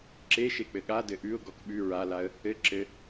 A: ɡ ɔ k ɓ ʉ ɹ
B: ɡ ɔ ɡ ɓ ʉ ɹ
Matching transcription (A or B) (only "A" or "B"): A